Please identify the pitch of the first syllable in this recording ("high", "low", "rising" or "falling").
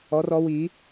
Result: rising